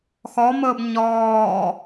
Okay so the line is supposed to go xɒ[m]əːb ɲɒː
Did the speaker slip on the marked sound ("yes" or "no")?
no